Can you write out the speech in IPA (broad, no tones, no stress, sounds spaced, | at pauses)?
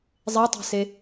zˤ e tˤ e̤ s e